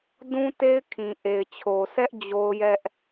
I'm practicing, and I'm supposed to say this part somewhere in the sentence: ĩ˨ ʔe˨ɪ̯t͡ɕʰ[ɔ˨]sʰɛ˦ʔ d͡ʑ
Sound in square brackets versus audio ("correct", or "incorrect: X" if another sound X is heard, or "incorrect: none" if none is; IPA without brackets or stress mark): incorrect: o˨